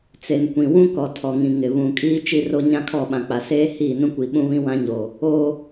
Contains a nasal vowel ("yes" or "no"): yes